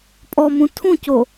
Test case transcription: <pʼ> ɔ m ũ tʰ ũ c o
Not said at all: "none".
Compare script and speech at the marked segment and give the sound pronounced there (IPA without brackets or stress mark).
pʼ